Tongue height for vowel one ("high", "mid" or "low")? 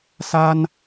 low